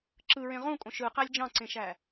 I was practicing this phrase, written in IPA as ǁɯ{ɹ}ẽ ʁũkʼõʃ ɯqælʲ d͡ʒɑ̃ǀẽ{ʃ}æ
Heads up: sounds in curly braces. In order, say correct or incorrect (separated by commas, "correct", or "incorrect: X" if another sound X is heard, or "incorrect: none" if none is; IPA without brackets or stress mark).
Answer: correct, correct